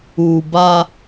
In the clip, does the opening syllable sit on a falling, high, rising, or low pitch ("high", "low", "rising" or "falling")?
low